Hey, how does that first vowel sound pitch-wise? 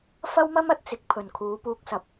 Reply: high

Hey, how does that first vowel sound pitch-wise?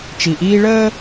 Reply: low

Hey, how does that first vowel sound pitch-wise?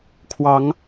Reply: rising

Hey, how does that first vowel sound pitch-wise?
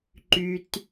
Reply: low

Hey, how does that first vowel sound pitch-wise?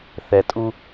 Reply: low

